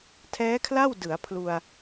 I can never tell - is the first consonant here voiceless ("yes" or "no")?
yes